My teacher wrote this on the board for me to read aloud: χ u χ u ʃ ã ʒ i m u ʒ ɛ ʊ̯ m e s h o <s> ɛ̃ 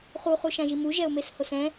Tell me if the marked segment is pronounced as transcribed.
yes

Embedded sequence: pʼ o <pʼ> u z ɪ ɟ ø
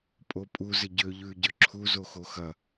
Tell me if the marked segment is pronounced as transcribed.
yes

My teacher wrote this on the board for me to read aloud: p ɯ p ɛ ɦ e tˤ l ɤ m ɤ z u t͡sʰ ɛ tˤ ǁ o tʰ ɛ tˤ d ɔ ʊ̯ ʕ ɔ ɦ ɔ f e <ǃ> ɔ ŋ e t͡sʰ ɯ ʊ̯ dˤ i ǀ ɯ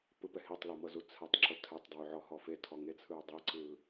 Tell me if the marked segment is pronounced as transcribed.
no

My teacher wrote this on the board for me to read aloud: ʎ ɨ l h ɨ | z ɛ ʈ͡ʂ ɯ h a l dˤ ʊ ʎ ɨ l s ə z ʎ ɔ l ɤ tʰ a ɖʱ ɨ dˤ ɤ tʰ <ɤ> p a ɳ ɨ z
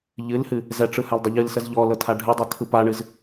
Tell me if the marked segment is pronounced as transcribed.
no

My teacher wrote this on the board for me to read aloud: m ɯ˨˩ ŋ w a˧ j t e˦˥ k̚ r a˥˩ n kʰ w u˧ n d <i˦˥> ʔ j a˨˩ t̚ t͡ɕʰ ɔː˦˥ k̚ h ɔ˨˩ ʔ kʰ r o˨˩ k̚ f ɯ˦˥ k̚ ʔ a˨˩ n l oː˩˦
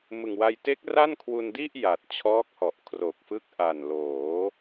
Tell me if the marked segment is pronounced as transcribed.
no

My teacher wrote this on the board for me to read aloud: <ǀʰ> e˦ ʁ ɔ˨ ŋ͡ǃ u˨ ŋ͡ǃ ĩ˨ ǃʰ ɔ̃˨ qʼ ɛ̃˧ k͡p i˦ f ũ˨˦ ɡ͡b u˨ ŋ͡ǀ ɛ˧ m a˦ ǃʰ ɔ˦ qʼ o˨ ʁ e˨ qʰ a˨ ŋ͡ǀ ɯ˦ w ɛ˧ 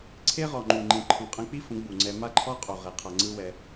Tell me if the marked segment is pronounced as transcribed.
yes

